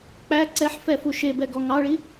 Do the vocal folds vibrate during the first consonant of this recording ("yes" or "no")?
no